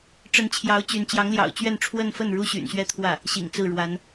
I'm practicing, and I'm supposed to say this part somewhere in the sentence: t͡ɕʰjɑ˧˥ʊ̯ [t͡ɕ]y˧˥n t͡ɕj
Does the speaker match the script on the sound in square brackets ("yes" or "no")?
yes